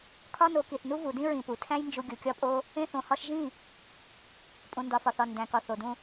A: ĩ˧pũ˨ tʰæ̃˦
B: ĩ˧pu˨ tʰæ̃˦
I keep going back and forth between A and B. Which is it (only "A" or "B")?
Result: B